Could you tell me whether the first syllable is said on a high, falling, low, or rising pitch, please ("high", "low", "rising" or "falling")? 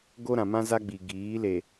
high